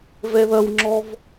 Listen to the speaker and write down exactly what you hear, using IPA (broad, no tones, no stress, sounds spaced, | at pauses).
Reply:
v ɛ ð ɐ w ŋ͡ǁ ɔ v